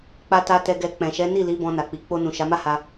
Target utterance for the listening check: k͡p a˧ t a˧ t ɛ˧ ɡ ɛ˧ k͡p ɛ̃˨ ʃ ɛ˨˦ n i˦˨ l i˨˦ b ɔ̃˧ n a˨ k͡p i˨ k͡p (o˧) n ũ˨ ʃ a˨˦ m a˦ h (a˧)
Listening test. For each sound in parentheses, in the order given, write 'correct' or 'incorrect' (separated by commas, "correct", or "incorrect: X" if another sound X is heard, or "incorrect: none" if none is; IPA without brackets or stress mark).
correct, correct